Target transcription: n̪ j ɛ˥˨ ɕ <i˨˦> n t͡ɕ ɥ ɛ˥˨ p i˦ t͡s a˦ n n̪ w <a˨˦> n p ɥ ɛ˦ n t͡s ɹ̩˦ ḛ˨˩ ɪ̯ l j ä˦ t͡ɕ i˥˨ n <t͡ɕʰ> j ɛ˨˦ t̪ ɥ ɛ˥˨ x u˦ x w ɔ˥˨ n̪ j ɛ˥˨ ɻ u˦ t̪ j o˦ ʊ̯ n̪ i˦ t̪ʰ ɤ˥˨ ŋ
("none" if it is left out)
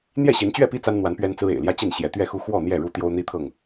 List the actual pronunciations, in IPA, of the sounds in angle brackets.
i˨˦, a˨˦, ɕ

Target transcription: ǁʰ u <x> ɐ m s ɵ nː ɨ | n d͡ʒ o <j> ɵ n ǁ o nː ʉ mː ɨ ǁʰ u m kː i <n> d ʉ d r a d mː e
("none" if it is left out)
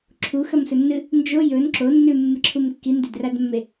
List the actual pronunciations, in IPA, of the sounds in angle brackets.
x, j, n

